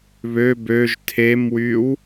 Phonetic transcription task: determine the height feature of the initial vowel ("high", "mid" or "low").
mid